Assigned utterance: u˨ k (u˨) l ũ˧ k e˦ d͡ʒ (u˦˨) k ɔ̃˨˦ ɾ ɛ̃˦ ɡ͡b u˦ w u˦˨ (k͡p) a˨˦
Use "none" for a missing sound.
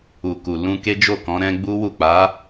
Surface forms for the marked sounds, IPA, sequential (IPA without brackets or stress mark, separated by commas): u˨, o˦˨, k͡p